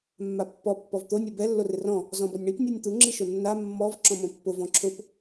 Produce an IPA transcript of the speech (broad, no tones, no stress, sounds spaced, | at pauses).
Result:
mː a pː ɔ pː ɔ v t̪ o nʲ o b ɛ lː o r ɪ r ɔ̃ | z ɔ̃ b ɔ nʲ ɳ i p nʲ a nʲ t̪ u ŋ͡ǁ i ʃ ʊ nː a mː ɔ v ǁ ɔ̃ m õ pː ʊ v ɔ̃ ǁʰ ʊ p